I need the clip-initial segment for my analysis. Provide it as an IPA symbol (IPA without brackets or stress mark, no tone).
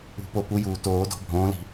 ṳ